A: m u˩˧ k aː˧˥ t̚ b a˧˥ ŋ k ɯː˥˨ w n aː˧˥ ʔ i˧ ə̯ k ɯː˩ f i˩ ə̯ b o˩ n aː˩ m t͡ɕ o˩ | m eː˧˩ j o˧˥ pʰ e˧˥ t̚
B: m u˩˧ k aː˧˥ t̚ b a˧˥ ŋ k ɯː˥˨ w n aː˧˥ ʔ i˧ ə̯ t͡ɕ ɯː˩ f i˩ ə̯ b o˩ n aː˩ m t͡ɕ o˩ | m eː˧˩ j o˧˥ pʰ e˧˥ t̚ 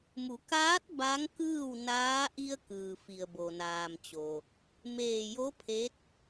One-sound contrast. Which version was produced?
A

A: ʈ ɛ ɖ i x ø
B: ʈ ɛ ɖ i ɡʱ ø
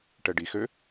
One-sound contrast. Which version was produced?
A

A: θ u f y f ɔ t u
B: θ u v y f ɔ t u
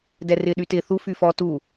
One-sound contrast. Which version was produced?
A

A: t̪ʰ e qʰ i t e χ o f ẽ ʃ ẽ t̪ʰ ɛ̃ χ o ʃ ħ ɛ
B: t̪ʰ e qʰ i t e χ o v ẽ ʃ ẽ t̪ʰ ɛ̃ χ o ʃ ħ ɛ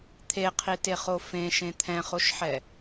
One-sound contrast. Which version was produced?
A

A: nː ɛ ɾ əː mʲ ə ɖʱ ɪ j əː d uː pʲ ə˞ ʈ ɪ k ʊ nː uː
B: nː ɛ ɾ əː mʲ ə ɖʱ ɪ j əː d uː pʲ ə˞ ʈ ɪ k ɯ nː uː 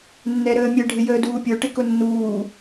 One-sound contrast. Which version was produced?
A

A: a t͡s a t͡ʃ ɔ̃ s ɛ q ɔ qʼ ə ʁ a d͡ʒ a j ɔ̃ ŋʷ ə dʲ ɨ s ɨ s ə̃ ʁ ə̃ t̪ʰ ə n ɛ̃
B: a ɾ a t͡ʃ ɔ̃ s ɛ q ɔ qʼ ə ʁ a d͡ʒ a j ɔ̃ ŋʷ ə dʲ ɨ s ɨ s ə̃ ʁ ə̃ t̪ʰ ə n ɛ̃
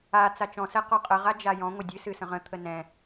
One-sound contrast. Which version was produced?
A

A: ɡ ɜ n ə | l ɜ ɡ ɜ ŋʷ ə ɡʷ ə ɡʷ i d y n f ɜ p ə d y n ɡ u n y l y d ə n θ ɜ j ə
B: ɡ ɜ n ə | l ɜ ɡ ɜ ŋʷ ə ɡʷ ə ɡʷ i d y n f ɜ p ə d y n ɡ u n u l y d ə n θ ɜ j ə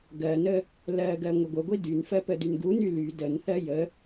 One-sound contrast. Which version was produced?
A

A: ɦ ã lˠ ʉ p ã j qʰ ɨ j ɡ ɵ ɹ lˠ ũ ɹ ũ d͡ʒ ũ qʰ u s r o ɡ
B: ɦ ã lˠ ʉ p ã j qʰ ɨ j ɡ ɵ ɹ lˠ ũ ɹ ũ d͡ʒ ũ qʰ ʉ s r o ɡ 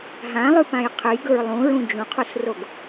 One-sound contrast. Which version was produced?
A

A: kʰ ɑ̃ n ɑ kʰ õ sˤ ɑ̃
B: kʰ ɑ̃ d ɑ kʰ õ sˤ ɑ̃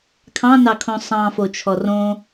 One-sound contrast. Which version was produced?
A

